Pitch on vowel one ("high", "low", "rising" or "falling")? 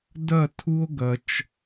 falling